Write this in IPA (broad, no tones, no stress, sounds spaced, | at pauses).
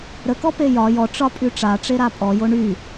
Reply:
ɾ ə k ɔ p e j ɒ j ɔ ʈ͡ʂ ɒ pʼ y ʈ͡ʂ a ʈ͡ʂ e ɾ a pʼ ɔ j o ɳ y